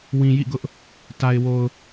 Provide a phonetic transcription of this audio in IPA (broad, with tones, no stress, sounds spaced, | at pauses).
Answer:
w ĩ˨ j ḭ˦˨ ɡ ʊ˦ ʔ | t a˨ ɪ̯ w o˨ ʊ̯